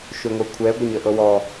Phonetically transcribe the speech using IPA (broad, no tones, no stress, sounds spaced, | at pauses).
ʃ ʏ ŋʷ ɛ kʷʰ ɛ ɡʷ ə ɲ ə ʔ ɤ w ɔ